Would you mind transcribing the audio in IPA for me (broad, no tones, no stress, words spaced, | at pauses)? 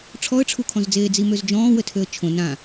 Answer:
ʈ͡ʂʰɔə̯ʈ͡ʂʰukʰɔ̃zd͡zeː d͡zimøzd͡ʒɔ̃ːwə tʰøə̯t͡ʃʰõ nã